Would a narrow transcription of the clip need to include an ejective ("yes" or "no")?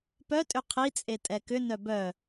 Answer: yes